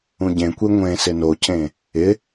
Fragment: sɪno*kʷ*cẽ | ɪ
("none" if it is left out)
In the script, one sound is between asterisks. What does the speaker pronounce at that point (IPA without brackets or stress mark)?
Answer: none